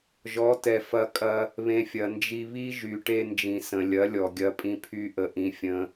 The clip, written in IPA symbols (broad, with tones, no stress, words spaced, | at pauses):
ʒɔ˨˦tɛ˨ fɐ˧kʼɐ˧ | βẽ˨ fʲɐ˨nd͡ʒi˧ βi˦ ʒy˨ʈe˧nd͡ʒĩ˨ sə̃˨lʲɐ˨˦ lʲɔ˨ɡʲɐ˧pʼĩ˧ pʰy˦ʔə˧ʔĩ˧ fʲə̃˧